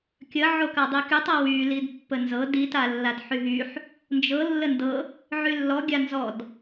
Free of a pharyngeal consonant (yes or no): no